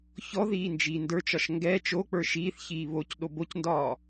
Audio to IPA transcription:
çɔ ðiːnd͡ʒiːndə˞t͡ʃɒʃ ŋɡɛ t͡ʃok͡pə˞ ʃiːθçiː βoc ɗobocndɒː

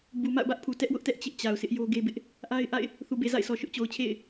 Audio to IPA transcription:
bu˨ma̰˦˨ʊ̯bä˦ʔpʰu˨ tɛ˦ʔwʊ˦ʔtɛ˦ʔ t͡ɕɪ˦ʔt͡ɕa˨ʊ̯sɪ˦ʔ jo˦ɡe˦bɪ˦ʔ | ʔa˦ɪ̯ʔa̰˦˨ɪ̯ | θu˨be˨za̰˦˨ɪ̯sʰɔ˨ ʃʊ˦ʔt͡ɕo˨ʊ̯t͡ɕʰḛ˦˨ɪ̯

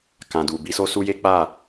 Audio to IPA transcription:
kã˨du˨ bi˨˦so˦su˦je˦ k͡pa˦˨

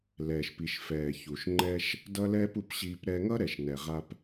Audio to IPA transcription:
lɛː˨ʃpi˨ʃfɛː˨ çu˨ʃŋ͡ǃɛ˧ʃ | dʌ˦lɛː˦pu˧pɕiː˧p ɾɛ˧ŋʌ˦ ɾɛ˨ʃnɛ˨ ʁa˧p

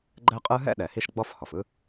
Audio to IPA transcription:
ɡ͡ǃɛ˥qʼɯ˥ ɦɛ̰˥ɗɛ˩ hi˦ʃɡ͡bɔ˦fhɔ˩f ɯ˥

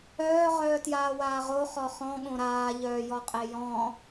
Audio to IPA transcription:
œː ʁœːtjaːwaːʁo χɔχɔ̃ ɠõɾaː ʎœːjɔqʼejɔ̃

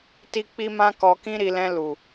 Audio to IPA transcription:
ti˦k͡pi˦mã˦ kɔ˧kĩ˦ɾi˧lɛ̃˧ lu˨

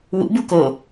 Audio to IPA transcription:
wṵbu ko

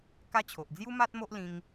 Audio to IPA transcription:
ka˦t͡ɕʰo˨ʔ d͡zju˦ma˦t̚mo˦ʔ lĩ˧ŋ

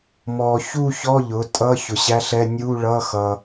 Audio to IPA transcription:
mɔ˨ çu˥˨çɔ˧˥˧ ʎʊ˩˥tʼʌ˧˥˧ çʊ˨ɕæ˧˥˧ɬɛ˧˥˧ nʲu˧˥˧ɭʌ˧˥˧ xʌ˨

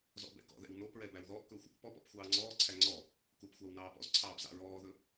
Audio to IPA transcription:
zɔ̰bɛ̰kɔ̰ðɛ̰w nopɹɛ bæwðɔːʔkɵːxʷ | pɔp ɔ̰pxʷɑːŋ͡ǀɔːǀʰæ ŋ͡ǀɔ | kup xʷɑwnɑːpɔ̰zǀʰɑːb zɑ̰ɹɔːðɵ

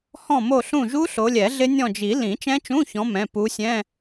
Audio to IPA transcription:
hɔ̃˦˨mo˦˨ɬũ˦˨ʒu˦˥ ɬo˨˦lʲɛ˨˩˦ɮɪ˦˥ nʲɔ̃˦˨d͡ʒi˨˩˦ lĩ˨˩˦t͡ʃɛ̃˦˥t͡ʃũ˧˥˧çɔ̃˨˦ mɛ̃˩˧˩ pu˨˦sʲɛ̃˧˥˧

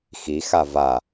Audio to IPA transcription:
xi xava

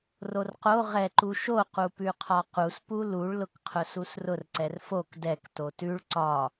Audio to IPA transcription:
rorqo ʁɛ ǃuʃo qupʉqʰɒqus puluɭ lʊkqʰʊsusrʊr ǀɛrfok dɛk totʉɭ ǀɒ

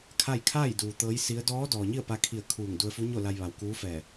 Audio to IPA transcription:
kʰa˥˨j kʰaː˥˨jduː˩ t̪ɤː˧˥jsi˧˥ə̯ dɔː˧˥ dɔː˩ɲi˥˨ə̯pa˧kʰi˧˩ə̯ kʰuː˧˩ŋdu˧ə̯fu˧˥ɲo˥˨ la˧jʋa˩w kuː˧˥fɛː˧˩

